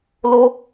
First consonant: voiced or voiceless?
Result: voiced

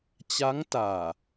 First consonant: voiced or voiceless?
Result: voiceless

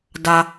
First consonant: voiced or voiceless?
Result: voiced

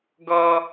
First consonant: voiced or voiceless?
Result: voiced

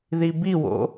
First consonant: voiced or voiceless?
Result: voiced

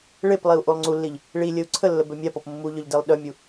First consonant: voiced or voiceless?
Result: voiced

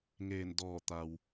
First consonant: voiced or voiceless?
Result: voiced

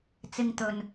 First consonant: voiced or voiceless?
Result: voiceless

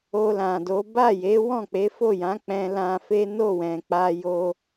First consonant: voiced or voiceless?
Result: voiced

